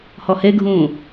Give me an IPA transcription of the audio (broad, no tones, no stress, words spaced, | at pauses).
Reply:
hɔheɡʱũː